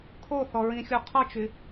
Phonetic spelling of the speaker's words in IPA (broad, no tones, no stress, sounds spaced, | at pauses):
kʰ o θ ɔ ɹ ĩ xʲ o qʰ ɔ t͡ʃ y